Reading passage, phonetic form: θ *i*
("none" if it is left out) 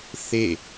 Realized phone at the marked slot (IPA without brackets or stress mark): e